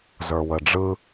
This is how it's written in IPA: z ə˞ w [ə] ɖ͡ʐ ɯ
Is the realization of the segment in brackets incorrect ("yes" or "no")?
no